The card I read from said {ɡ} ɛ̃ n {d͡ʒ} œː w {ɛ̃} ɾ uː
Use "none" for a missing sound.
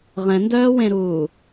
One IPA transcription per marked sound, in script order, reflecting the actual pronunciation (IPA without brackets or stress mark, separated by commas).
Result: ʁ, d, ẽ